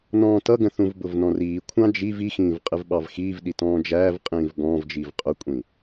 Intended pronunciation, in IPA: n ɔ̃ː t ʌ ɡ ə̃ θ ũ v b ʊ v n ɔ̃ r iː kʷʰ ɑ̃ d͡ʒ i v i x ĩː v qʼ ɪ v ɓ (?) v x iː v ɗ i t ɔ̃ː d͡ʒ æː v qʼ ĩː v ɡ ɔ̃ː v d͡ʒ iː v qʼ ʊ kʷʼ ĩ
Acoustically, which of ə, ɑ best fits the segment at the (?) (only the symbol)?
ɑ